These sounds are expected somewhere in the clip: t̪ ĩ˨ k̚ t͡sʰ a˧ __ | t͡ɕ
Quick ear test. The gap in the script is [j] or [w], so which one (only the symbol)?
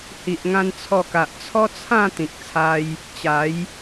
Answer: j